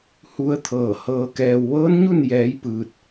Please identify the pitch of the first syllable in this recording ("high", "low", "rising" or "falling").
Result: rising